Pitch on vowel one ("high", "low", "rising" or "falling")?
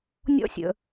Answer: high